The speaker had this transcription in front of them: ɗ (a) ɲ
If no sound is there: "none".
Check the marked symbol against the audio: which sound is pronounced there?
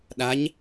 a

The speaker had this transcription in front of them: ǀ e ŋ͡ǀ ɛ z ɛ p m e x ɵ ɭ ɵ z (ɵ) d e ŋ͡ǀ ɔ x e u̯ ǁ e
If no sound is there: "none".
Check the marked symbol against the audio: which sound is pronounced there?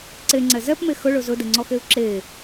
ɵ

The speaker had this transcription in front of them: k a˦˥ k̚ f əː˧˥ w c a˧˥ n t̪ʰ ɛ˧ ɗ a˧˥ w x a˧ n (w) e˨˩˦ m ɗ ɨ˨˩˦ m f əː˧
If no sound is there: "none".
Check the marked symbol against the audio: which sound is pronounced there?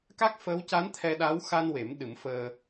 w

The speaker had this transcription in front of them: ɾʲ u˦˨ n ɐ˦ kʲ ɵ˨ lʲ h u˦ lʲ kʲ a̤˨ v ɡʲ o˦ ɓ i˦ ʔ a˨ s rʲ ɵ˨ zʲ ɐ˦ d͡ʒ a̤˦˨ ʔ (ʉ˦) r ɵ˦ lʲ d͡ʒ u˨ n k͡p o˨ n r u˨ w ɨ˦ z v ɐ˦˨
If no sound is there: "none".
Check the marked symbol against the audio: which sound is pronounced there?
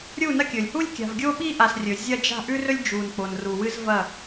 ʉ˦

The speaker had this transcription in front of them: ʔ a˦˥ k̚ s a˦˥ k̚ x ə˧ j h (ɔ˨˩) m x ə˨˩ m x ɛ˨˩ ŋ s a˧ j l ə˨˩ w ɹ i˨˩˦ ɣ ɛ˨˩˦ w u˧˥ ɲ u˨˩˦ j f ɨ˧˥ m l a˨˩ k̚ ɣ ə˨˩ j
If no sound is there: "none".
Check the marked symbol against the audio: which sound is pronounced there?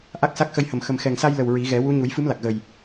ə˨˩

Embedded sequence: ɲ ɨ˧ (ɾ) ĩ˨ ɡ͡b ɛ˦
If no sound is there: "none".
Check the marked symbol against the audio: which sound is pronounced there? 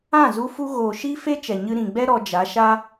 ɾ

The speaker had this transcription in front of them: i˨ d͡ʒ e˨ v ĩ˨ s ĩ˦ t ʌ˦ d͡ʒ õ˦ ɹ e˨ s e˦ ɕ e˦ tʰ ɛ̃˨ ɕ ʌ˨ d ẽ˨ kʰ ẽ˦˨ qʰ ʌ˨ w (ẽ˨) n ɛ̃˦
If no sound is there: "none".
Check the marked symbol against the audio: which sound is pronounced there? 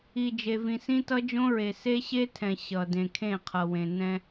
ẽ˨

